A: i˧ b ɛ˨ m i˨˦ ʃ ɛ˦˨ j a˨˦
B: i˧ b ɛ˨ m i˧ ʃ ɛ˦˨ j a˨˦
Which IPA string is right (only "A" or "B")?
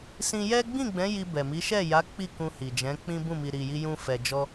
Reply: A